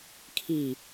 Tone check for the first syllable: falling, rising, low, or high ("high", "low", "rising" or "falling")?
low